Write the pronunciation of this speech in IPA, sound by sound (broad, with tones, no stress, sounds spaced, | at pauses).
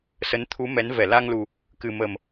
s ə˨˦ n t̪ʰ u˨˦ m ɛ˨˦ n v ɛ˧˩ l a˧ ŋ l u˨˩ | k ɨ˨˩ m ə˨˩ m